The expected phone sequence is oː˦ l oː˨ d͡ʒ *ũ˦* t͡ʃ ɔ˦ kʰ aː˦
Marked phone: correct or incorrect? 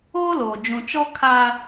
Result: incorrect